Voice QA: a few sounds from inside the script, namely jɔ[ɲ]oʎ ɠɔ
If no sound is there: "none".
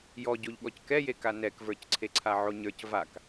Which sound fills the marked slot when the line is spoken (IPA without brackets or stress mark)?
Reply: ɟ